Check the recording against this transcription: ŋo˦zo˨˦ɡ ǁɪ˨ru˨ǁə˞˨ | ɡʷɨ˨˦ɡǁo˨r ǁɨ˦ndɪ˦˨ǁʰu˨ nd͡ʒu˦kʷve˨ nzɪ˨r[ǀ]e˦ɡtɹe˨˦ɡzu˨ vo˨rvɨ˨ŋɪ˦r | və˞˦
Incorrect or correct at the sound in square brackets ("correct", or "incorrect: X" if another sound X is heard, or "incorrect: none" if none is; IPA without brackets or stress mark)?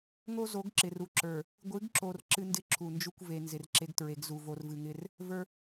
incorrect: ǁ